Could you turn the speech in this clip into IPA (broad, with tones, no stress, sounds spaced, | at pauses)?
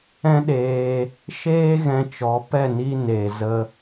ɛ̃˦ ɗ eː˧ | ʃ eː˦ ɣ ɛ̃˧ t͡ʃ ɔ˨˦ p ɛ˦˨ n i˧ n e˨ z ə˧